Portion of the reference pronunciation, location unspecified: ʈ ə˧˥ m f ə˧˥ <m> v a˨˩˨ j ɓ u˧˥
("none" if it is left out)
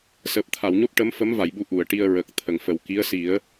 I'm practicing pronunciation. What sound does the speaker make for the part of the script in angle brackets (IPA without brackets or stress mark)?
m